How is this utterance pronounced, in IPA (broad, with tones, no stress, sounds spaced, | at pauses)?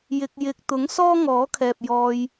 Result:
j ɪ˧ k̚ j ɪ˧ k̚ t̪ ʊ˨˥ ŋ s ɔː˥ ŋ ɔː˨˥ kʰ ɛː˨ p̚ j ɔː˧ j